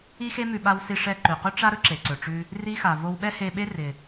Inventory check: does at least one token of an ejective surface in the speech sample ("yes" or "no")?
no